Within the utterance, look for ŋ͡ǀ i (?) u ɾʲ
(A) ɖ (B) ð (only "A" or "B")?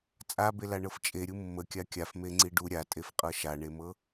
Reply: A